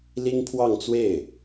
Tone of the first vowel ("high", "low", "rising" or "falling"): high